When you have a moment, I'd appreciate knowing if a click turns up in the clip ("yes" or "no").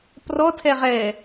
no